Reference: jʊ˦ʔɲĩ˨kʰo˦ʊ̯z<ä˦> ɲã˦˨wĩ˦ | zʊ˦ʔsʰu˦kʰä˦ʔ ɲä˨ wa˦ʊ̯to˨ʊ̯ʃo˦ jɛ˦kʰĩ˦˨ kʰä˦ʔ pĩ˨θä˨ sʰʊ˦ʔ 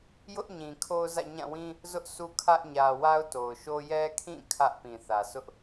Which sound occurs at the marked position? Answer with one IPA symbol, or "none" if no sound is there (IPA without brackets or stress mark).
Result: ä̰˦˨